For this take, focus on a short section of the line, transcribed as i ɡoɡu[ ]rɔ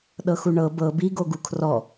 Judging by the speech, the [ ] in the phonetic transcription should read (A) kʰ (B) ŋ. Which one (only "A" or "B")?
A